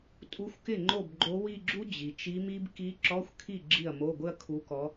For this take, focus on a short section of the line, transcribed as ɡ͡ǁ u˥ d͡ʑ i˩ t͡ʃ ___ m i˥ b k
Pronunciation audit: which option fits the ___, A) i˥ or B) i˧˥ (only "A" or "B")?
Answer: B